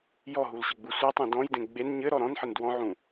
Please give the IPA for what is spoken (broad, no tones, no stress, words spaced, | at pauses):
jɔɦulɕɘɡ͡bu sʷɘtˤũ dɔ̃jdẽ ɡ͡ben ɲɘ ɾɔɾɔ̃nħɘn dwɔ̃ʕũ